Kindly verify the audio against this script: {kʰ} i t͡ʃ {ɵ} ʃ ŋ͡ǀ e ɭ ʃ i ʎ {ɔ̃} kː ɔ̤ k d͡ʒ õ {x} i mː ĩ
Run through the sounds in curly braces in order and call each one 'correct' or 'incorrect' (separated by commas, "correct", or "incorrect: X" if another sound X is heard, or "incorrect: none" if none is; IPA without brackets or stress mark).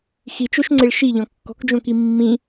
incorrect: x, incorrect: o, correct, incorrect: k